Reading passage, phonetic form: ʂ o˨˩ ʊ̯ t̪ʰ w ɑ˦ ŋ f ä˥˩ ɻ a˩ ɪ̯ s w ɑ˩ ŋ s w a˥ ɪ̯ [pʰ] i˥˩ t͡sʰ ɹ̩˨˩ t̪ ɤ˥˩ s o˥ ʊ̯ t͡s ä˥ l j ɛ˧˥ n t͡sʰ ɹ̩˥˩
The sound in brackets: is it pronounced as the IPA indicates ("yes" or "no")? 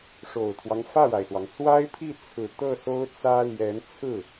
yes